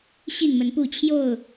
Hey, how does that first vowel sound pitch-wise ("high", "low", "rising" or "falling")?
falling